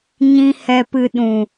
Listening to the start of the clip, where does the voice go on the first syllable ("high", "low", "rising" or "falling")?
high